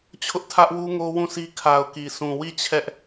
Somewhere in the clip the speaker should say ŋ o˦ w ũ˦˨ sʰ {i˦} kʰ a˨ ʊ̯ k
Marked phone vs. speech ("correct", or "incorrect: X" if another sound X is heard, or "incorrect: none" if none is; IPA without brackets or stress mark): correct